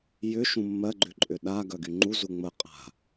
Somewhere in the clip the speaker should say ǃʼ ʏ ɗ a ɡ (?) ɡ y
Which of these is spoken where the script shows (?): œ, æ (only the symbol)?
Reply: œ